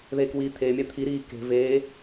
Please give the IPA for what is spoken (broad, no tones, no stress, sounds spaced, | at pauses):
ð eː k w iː t̪ʰ eː mʲ a t̪ʰ i ɾ iː k e̤ v eː